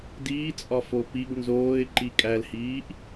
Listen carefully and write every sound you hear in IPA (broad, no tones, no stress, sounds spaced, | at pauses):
d iː t͡sʼ ɒ f o p i ɡ n z oː ɪ̯ ǃ i kʼ æ l h iː ʔ